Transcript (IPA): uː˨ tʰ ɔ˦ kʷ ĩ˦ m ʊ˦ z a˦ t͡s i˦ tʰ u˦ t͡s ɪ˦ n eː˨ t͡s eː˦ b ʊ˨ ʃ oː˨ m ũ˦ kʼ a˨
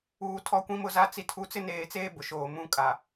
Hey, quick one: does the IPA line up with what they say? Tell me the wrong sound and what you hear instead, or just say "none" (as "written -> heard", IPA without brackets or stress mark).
none